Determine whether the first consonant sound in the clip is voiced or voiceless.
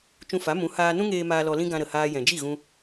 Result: voiceless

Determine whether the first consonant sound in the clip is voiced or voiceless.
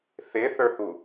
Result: voiceless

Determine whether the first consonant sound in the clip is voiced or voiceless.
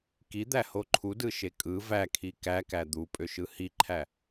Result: voiceless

